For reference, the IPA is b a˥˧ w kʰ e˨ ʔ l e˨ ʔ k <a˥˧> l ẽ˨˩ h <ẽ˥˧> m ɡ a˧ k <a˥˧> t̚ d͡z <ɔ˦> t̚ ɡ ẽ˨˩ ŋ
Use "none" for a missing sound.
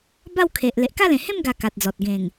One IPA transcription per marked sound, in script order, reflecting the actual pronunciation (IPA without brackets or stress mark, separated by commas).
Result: a˥˧, ẽ˥˧, a˨, ɔ˨